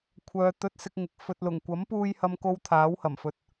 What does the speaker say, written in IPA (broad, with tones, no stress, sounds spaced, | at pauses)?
kʷʰ œː˨˧ t̪ ɵ˧ t̚ s ɪ˧ k̚ ŋ ɪ˨ k̚ f ɵ˨ t̚ l ʊ˨˩ ŋ kʷ ɐ˨˥ m p uː˧ j h ɐ˥ m k o˥ w t̪ʰ aː˨˥ w h ɐ˨˩ m f ɵ˨˥ t̚